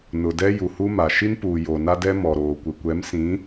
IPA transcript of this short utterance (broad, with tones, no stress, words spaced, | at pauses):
nʊ˨dɛ˦ ju˨hu˦ma˨ ʃi˦npuː˨ jo˨na˦dɛ˦ mɔ˨ɾoː˨ kʷɪ˨kʷɛ˨˦msĩ˨˦